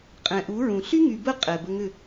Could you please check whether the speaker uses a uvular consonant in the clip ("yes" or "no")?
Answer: yes